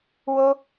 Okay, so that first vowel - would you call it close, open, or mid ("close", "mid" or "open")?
mid